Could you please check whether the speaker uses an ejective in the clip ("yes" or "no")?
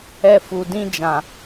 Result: no